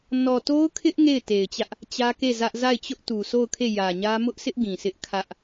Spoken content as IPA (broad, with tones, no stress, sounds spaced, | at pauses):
n ɔ˨ t o˦ ʊ̯ kʰ ɪ˦ ʔ ŋ e˦˨ ɪ̯ t e˨ ɪ̯ t͡ɕ ä˦ ʔ | t͡ɕ ä˦ k e˦˨ z ä˦ ʔ z a˦˨ ɪ̯ t͡ɕ ʊ˦ ʔ t u˨ sʰ o˦˨ ʊ̯ kʰ e˦˨ j ä˨ ɲ ä˦ m ʊ˦ ʔ sʰ ɪ˦ ʔ ɡ ĩ˨ s ɪ˦ ʔ kʰ ä˦ ʔ